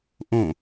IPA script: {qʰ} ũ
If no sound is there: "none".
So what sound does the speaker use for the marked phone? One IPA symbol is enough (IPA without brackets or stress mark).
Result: ʔ